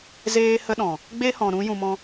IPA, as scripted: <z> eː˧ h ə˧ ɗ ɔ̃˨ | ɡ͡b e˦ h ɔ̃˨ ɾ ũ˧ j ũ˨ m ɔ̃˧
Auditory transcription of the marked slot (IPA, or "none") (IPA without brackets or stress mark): z